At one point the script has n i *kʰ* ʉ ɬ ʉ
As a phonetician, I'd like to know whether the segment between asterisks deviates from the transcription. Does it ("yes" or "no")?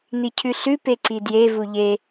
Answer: yes